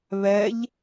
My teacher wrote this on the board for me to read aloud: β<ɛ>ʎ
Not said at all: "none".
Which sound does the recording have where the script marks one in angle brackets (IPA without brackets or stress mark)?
ɛ